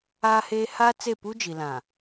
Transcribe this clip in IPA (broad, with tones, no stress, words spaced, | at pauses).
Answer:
aː˦heː˦ haː˦t͡se˦˨pu˦d͡ʒi˨ lã˨